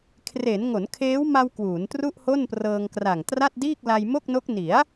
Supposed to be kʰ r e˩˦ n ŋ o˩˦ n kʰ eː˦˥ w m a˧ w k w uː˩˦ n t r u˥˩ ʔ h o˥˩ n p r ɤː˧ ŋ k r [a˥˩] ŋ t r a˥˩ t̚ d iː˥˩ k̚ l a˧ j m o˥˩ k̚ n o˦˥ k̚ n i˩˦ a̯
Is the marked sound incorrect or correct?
incorrect